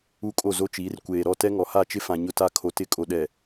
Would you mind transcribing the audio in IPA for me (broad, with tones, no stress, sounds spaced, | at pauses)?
u˦˨ kʼ o˦˨ z o˦ t͡ʃ iː˨˦ r kʷ eː˨ ɾ ɔ˦˨ t ɛ˦ ŋ ɔ˨ h a˦˨ t͡ʃ ɪ˦ f ã˨ ɲ ʊ˦ t a˦ kʰ o˨ t ɪ˦˨ kʼ o˨ ɗ ɛ˨